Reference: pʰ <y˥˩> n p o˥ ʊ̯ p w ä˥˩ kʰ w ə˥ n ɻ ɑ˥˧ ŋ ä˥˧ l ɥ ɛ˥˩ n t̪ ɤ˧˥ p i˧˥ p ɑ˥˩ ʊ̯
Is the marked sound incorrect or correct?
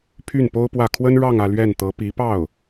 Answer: correct